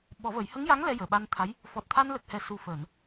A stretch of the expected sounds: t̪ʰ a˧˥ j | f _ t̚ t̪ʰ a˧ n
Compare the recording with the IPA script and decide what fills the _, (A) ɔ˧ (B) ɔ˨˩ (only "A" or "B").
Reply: B